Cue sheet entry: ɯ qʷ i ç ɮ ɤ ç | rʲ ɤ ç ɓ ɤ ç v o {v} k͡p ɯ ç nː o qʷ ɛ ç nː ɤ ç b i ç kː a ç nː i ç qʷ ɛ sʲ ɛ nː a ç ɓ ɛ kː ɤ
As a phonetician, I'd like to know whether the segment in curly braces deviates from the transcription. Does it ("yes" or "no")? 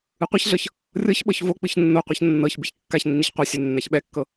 yes